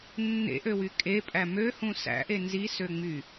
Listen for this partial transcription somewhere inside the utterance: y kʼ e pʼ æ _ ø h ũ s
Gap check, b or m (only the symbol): m